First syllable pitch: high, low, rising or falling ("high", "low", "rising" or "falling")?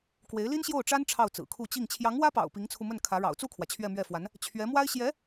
rising